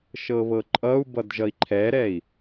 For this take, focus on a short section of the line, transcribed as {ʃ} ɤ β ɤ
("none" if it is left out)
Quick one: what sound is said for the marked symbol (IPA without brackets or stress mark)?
ʃ